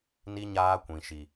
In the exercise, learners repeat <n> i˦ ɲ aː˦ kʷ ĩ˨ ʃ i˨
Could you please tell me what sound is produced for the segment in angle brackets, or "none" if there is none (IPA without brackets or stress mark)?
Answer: n